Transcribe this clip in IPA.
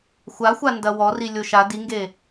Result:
xʷ a xʷ a n d ɐ w ɔ r i lʲ o ʃ a d i ŋ ɡ e

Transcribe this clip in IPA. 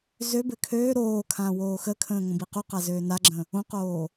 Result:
z ø b ɘ kʰ øː ɾ oː kʰ ãː w oː x ə kʰ ə̃ː ŋ õ b i q u q a z øː n a ɡ͡ǁ ə̃ | õ q oː

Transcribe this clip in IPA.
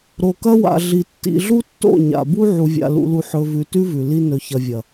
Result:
ɾ o˨ k ɐ˦ w a̰˨ ɮ i˨ tː ḭ˨ ɮ u˦ tː o̰˦˨ ɲ a̰˨ b u˦ ʕ u˨ vʲ a̰˨ l ṵ˨ l u˨ ħ ɵ˨ v ʉ˨ t ʉ˦ v ʉ˨ l i˦ n ɵ˨ ç ɐ˨ vʲ ɐ˨

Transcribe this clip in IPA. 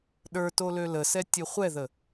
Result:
ɗ ə˞ t o l ø l ə s ɛ tʲ ɨ χʷ ɛ ð ə

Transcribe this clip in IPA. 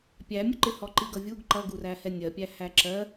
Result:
pʲ æ mʲ ʊ ǃ ɪ h ɔ ǃ i ɡ ʌ vʲ u ɡ ǃ ʌ ɡ u r æ h ɛ nʲ ɜ pʲ æ h æ ǁ ɜ

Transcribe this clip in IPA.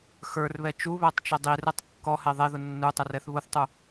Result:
x ə˞ r β ɛ t͡ʃ u β æ tˤ t͡ʃ ə dˤ i r ɛ tˤ kː ɔ h ɛ ðˤ ɛ ð ʊ nː u tˤ ə r ɛ θ β ʊ θ tˤ u

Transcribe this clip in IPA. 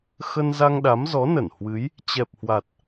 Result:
x ə˧ n z a˧ ŋ ɗ a˨˦ m z ɔ˨˦ n ə˧˩ n h w ɨ˨˦ j | t͡ɕ ɛ˨˩ p̚ h w a˨˩ t̚

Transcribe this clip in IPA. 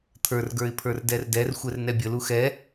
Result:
t̪ʰ ə˞ r ɡ ə˞ ɪ̯ pʰ ə˞ r d ɛ r d ɛ r xʷ ɛ r n ɛ bʲ ə l u x ɛ

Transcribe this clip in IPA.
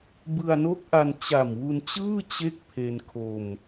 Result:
b ɯ˧ a̯ n o˦˥ k̚ ʔ a˧ n t͡ɕ a˨˩ m w u˧ n t͡ɕ ɯː˥˩ t͡ɕ e˥˩ k̚ pʰ e˧ n kʰ o˧ m

